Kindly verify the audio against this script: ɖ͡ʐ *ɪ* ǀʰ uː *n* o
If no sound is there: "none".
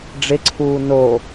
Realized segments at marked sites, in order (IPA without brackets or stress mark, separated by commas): ɪ, n